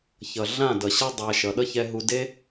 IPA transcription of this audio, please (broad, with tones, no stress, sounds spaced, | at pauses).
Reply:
ç ʌ˨ ɮ ã˦˨ d ʌ˨ ɕ ʌ˦ dˤ a˧ ʃ ʌ˨ ɗ ʌ˦ ç ɛ˧ ɦ u˧ d e˦